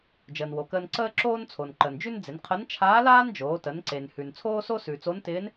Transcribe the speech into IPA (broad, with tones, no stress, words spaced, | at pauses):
d͡ʒəː˩nwo˩kəː˧n ǀəː˥ ǁoː˥nt͡sʰo˩nǃəː˩nd͡ʒʉ˥n d͡zɪ˩˧nqʰə˧˥n t͡ʃʰaː˧˥laː˥nd͡ʒoː˩˧tə˩˧n ǀe˩nhʉ˩n t͡sʰoː˥so˥sʉ˩t͡so˧˥n tɪː˧˥n